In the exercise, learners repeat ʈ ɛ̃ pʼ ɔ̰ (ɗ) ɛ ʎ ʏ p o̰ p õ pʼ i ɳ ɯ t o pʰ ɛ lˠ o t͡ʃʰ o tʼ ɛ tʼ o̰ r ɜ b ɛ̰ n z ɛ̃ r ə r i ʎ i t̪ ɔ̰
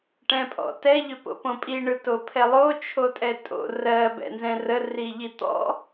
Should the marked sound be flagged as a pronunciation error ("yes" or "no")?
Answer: yes